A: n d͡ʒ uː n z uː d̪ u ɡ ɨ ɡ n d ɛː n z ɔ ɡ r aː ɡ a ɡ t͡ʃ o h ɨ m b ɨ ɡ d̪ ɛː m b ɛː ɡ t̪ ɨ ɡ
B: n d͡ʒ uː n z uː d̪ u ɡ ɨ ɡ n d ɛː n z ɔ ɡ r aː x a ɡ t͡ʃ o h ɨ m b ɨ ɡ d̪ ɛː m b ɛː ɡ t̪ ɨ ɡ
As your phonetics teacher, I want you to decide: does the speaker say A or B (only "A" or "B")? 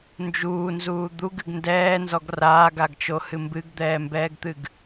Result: A